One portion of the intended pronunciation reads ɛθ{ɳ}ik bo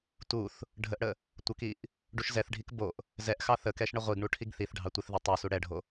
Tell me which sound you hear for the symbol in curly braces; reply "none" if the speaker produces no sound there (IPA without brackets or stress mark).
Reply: ɖʱ